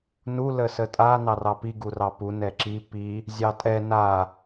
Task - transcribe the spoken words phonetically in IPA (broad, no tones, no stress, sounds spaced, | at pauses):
n u l ə s ə tʼ a n ɑ r ɑ p i ɡ u r ɑ p u n ɛ ǁ i p i | zʲ ɑ tʼ ɛ n a